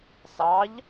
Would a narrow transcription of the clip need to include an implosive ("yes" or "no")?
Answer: no